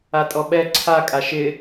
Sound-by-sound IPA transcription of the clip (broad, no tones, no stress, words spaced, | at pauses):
atʼɔɓɛ ǀʰa kʼaʃɪ